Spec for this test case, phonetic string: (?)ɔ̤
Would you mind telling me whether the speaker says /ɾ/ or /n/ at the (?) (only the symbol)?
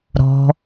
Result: ɾ